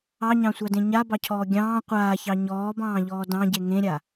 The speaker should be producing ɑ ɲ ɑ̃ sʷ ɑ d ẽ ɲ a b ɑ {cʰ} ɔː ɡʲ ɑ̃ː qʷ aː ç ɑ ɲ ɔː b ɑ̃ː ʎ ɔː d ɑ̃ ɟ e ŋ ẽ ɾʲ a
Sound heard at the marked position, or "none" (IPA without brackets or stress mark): cʰ